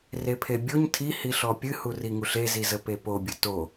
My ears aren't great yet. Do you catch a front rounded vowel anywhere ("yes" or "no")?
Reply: no